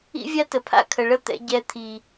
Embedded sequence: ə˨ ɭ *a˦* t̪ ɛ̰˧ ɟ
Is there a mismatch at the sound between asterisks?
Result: yes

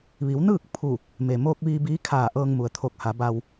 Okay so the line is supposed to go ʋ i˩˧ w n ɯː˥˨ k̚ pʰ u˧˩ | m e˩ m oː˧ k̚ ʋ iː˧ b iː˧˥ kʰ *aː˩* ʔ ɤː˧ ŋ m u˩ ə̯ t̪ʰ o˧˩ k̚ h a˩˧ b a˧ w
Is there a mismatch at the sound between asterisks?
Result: yes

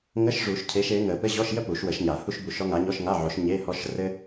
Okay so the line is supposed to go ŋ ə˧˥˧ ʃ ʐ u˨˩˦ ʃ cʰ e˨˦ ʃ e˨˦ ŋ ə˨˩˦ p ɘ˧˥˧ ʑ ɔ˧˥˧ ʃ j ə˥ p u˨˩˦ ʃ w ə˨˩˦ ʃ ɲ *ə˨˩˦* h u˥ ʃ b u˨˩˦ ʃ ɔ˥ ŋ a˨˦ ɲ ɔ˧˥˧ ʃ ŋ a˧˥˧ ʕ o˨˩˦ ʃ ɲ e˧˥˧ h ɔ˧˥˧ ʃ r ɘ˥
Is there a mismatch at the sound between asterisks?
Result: yes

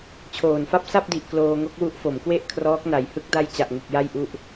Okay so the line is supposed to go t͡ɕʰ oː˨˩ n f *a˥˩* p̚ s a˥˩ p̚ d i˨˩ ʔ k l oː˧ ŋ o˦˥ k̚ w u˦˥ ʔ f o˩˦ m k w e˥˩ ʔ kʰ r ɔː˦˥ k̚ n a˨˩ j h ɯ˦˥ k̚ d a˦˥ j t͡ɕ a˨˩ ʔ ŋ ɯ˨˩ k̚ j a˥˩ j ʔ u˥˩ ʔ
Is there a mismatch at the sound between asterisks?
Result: no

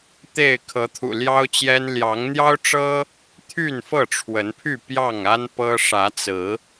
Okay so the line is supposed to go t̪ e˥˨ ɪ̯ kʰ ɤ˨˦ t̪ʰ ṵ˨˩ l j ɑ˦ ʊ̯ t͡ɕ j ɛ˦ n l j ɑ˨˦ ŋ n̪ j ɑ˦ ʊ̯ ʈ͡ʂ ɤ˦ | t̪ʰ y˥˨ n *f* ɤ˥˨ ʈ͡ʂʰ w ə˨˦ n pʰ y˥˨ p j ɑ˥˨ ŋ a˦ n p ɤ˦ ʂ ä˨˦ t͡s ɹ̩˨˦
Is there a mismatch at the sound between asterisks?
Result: no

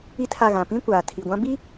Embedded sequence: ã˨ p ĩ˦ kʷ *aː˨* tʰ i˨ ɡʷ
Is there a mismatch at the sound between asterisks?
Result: no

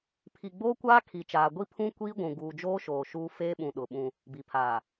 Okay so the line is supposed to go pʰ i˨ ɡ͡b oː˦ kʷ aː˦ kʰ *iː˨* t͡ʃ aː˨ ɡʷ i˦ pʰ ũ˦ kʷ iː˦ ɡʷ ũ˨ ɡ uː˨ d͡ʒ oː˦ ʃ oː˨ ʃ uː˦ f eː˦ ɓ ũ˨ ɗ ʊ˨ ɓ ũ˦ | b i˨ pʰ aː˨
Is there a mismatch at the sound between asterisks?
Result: yes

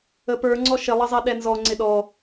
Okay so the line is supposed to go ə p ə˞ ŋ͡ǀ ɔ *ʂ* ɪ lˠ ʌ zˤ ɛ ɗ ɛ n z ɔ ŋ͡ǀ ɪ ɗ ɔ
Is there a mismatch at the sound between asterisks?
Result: yes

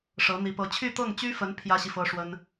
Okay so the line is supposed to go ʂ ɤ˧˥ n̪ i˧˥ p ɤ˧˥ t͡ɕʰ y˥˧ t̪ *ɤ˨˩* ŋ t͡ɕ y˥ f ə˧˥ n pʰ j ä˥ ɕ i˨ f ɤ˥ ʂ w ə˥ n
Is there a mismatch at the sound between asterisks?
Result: yes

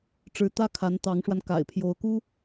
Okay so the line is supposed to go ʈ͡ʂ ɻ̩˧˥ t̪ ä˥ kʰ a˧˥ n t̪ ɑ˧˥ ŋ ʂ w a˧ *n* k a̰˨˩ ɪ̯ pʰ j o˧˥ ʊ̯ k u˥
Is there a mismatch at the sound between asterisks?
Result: no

